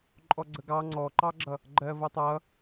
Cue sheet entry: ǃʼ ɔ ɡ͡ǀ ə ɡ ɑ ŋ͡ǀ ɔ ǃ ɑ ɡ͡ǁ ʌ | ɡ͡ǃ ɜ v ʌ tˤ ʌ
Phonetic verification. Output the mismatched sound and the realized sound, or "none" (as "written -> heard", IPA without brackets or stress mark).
none